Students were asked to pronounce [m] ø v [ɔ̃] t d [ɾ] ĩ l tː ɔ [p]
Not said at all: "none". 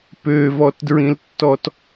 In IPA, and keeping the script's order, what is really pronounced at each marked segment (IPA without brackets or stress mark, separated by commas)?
p, ɔ, ɹ, t